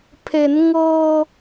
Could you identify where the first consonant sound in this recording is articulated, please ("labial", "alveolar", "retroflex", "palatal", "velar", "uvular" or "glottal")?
labial